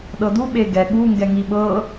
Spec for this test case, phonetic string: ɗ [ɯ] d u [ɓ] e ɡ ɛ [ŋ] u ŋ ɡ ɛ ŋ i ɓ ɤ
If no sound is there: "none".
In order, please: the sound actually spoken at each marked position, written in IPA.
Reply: ɤ, ɓ, ɠ

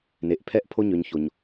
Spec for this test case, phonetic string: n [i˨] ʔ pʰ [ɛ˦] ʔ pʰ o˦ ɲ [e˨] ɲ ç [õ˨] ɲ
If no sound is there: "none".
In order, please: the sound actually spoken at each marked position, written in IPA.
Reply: e˨, ɛ˦, ø˨, o˨

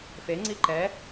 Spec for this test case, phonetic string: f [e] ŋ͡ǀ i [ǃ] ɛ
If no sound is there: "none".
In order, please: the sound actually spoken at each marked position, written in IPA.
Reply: e, ǃ

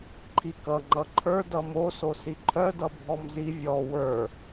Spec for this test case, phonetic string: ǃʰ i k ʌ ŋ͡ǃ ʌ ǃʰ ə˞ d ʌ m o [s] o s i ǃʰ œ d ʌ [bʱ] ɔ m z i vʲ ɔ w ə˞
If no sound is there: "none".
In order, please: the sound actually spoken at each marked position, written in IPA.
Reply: s, bʱ

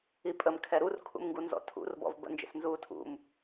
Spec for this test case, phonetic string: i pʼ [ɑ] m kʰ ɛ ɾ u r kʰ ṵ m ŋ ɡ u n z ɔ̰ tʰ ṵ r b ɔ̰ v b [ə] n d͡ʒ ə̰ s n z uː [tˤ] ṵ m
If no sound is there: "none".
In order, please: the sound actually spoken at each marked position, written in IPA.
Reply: ə, ə̰, tʰ

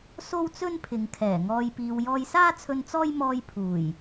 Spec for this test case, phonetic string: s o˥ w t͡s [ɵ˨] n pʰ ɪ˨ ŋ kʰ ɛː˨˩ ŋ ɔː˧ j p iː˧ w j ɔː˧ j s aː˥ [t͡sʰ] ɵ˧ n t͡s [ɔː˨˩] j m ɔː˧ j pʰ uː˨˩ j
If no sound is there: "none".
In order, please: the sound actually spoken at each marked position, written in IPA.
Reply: ɵ˥, t͡sʰ, ɔː˥

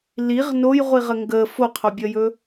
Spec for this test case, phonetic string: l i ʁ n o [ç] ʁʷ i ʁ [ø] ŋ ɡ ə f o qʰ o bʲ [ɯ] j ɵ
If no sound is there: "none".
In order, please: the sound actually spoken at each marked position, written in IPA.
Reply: j, ə, ə

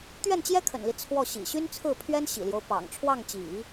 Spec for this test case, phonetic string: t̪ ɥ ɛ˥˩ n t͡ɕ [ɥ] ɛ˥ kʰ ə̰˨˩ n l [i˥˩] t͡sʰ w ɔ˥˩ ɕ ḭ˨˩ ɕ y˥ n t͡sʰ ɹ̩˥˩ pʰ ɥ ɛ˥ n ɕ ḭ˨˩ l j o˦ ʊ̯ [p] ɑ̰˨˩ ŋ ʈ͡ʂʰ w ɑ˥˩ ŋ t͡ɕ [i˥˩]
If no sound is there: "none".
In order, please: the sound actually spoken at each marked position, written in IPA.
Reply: j, i˦, p, ḭ˨˩˦

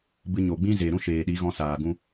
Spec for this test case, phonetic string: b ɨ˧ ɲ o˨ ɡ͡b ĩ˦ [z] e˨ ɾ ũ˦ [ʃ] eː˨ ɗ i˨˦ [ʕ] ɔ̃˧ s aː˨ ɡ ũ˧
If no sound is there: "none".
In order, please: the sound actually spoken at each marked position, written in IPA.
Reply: z, ʃ, ɣ

